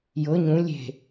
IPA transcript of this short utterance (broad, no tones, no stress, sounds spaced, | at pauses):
j ɤ ɲ ũ lʲ e̤